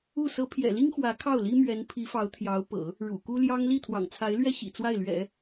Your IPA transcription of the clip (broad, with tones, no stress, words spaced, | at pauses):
u˥˩ sɤ˧˥pʰjɛ̰˨˩li˥ŋ xwä˧˥kʰɑ˥˩ʊ̯li˥ mɥɛ˧˥npʰi˧˥fɑ˧˥ʊ̯ t̪ʰjɑ˧˥ʊ̯ pɤ̰˨˩˦ | ɻṵ˨˩ku˥ ljɑ˥ŋ li˥˩t̪ʰwɑ̰˨˩ŋt͡sʰa˧˥ɪ̯lɥɛ˥ ɕḭ˨˩t͡swa˥˩ɪ̯lɥɛ̰˨˩˦